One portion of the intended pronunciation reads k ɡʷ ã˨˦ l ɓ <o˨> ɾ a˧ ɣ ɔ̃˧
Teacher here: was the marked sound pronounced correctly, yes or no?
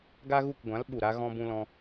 no